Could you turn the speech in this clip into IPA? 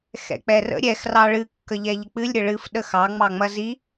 xɛ̰k͡pɛrə̰ ɾʲɛx rɑɭɨ kːəʎɛʎək͡pɨlʲ ɾʲəɭɨf ɗəxɑ ŋ͡mɑŋ͡mɐzi

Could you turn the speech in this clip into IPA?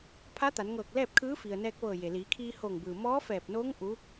pʰa˧˥t̪a˩˧nŋɤː˧˩k̚ lɛː˥˨p̚kʰɯː˧˥fi˩ə̯ nɛː˧k̚ʋɤː˧˩je˩ liː˩˧kʰiː˧hoː˧˩ŋbɯː˩ mɔː˧˥fɛː˧˩p̚noː˧˥ŋ ʔu˧˥

